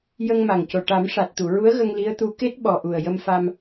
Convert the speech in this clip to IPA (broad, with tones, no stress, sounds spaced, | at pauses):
j ə˧ ŋ m a˨˩ ŋ c o˨˩ ʈ a˨˩˦ m ʂ a˨˩ t̚ t̪ u˨˩˨ ɹ u˧˥ ə̯ ɣ ə˧ ŋ l i˧˥ ə̯ t̪ u˧˥ k e˦˥ t̚ ɓ ɔ˨˩ ʔ u˨˩ ə̯ j ə˧ m f a˧ m